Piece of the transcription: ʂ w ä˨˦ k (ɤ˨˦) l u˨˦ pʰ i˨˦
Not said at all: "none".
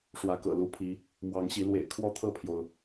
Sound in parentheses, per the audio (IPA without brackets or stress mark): ɤ̰˨˩